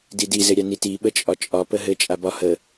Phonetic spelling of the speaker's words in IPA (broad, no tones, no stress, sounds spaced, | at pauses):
d i d i z ɘ ɾʲ a n i t i ɓ ə t͡ʃʼ ɒ t͡ʃʼ ɒ p ə ɦ ɘ t͡ʃʼ a b ɒ h ə